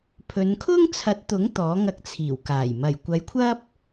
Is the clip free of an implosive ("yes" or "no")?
yes